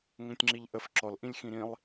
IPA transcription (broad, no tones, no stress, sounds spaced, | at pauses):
ŋ ə̃ tʲ ŋ͡ǁ i ʎ ʔ ə f ǁ ɔ l ʔ ĩ lʲ x ĩ ɾ ĩ lˠ